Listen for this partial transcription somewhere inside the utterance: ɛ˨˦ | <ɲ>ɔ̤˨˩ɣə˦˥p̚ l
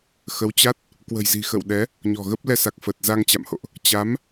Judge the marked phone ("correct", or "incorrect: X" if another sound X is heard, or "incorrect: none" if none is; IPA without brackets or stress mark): correct